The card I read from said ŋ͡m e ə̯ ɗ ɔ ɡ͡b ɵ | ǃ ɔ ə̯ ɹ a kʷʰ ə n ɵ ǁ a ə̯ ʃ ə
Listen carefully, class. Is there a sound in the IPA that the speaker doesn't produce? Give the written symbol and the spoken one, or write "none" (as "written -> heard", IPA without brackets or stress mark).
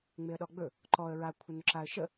none